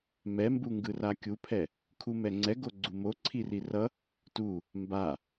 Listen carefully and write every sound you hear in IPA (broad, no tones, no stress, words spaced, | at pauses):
mɛmbuŋɡɯra kʲupʰɛ | kʰumɛŋ͡ǀɛ ɡoɡ͡ǀumo ǀʰirirʌ | tu | mba